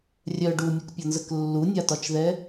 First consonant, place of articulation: alveolar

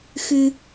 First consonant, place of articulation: velar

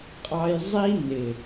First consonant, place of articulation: uvular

